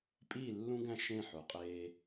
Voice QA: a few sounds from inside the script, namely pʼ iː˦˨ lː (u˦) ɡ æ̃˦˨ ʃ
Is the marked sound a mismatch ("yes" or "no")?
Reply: yes